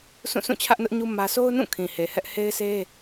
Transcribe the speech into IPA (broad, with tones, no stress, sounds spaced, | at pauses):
s ũ˦˨ sʰ ũ˦˨ t͡ɕʰ ä˦ ʔ n ʊ˦ ʔ ɲ u˦ m ä˦ s o˦ ʊ̯ n ũ˦˨ kʰ ĩ˨ h e˨ h ɛ˦ ʔ h e˦ ɪ̯ sʰ e˦